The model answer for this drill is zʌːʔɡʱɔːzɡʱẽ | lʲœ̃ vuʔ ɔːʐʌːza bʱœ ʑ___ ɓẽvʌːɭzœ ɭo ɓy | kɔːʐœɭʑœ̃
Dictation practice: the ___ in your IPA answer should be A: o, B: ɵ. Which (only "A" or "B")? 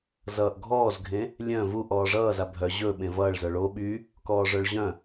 B